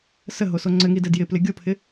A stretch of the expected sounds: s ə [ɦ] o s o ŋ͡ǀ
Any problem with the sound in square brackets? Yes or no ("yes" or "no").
no